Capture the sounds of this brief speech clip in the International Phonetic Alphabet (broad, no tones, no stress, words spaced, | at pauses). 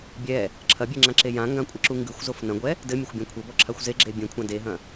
bʲɛ | ǁʰɐbʲɛŋ͡ǁãǁe jãŋɡãkʷʼɘǁu ŋɡɨxʷzof nɐ̃ɡʷɛ | dɘmʲɐxʷbʲã kʷʰɘbɔǁʰaxʷ zeɡ͡ǁe bʲẽkʷʰã deɦɐ̃